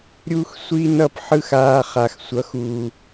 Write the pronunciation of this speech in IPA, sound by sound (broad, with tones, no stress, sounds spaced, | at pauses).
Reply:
ɾʲ u˥ x sʷ i˥ n ʌ˥˩ p ħ ɯ˥˩ x aː˧ χ a˩ x sʷ ʌ˩˥ x uː˩